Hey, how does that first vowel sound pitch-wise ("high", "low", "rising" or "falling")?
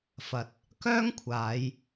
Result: low